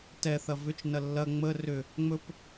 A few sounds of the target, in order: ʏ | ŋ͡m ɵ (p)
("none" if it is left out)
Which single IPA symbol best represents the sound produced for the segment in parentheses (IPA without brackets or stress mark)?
p